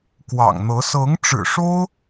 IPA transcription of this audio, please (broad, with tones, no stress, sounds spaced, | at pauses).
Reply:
k w ɑ̰˨˩ ŋ n̪ ɤ˧˥ s ɤ˧˥ ŋ ʈ͡ʂ ɻ̩˨˩ ʂ o˥ ʊ̯